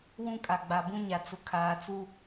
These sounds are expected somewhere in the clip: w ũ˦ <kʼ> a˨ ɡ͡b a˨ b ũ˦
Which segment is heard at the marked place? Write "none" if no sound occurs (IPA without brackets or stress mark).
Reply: kʼ